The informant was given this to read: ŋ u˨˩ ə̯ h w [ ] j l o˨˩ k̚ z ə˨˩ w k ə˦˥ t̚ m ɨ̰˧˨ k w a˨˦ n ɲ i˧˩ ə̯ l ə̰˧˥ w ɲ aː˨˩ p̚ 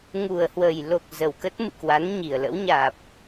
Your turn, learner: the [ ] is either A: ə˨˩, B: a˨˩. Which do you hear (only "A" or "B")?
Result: A